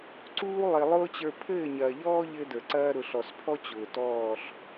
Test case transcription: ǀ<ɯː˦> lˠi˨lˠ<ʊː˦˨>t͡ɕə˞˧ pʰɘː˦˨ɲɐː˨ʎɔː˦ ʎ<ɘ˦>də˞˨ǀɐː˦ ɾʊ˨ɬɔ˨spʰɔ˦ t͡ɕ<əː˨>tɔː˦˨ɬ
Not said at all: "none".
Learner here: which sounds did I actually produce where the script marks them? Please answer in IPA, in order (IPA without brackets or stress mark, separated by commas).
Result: uː˦, ʊː˦, ɘ˦, ʊː˨